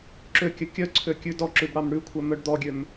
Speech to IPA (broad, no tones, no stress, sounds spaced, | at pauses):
ǁ ø kʲ œ kʲ œ ǀʰ ø kʲ ʉ d ɔ ǁ ʉ b ɽ ɑ m ɽ ʉ kʷʰ œ m œ ɖ d̪ ɔ ɡʲ ø m